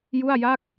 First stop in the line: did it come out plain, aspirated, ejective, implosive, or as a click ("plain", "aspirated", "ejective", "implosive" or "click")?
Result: plain